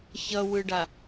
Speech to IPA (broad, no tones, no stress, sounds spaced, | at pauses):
ç ʌ w ɯ ɖ a